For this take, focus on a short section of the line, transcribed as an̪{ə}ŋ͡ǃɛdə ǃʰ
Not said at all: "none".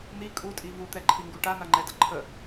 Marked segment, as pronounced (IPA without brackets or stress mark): a